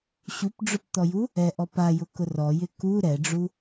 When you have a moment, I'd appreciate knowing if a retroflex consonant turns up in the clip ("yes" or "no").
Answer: yes